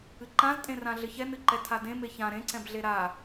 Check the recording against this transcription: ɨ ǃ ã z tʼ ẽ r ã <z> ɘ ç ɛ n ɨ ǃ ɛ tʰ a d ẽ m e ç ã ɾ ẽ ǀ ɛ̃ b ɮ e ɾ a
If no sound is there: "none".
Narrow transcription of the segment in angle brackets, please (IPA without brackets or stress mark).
ɮ